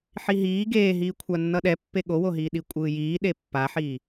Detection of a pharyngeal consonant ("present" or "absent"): present